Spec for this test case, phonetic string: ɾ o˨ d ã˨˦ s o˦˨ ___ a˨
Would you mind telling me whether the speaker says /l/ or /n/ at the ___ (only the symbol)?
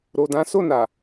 n